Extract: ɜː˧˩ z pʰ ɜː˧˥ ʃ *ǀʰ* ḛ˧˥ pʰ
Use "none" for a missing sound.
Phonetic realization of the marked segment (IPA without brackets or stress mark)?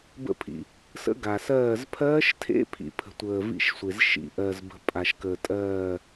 tʰ